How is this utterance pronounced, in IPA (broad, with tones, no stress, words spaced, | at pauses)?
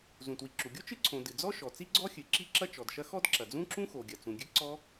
zũ˩twi˩ǁu˩ɡʲo˥ t͡ʃɨ˥ǀʰõ˩ dɨ˩d͡zɔ˥ ʃɔ˩t͡si˥ɡ͡ǀɔ˥xʲɨ˩ ǁi˥ǁɐ˥t͡ʃɔ˩dʃɐ˥ xɔ˥d ǁɐ˩d͡zũ˥ǁũ˥ xo˩ɡʲɐ˩t͡sũ˩ɡʲɨ˥ ǀɔ˥